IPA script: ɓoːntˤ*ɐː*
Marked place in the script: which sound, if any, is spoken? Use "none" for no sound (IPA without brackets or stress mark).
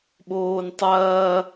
ɐː